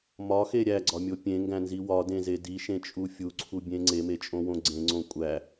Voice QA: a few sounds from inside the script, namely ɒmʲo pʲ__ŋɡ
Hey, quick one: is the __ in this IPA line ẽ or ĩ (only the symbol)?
ẽ